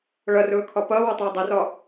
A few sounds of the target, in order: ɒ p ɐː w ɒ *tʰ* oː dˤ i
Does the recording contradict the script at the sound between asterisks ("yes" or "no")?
yes